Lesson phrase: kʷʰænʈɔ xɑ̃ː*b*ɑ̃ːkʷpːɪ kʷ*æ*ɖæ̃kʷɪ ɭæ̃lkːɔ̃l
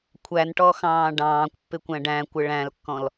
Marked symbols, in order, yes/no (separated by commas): no, no